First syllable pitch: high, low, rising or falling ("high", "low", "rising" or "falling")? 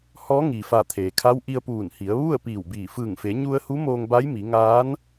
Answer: rising